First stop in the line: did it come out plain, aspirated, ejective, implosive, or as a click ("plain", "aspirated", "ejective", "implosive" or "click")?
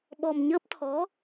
implosive